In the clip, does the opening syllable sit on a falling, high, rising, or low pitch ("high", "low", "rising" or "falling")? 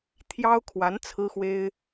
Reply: high